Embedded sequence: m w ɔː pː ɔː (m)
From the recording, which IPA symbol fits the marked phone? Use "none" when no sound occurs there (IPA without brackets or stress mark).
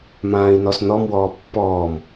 m